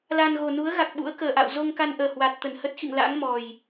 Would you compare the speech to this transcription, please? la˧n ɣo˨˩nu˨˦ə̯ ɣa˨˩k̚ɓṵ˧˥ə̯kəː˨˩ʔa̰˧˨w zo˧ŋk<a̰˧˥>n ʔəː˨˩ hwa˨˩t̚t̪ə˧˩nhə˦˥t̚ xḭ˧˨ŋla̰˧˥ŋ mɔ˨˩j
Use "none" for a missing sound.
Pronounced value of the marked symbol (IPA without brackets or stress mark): a˧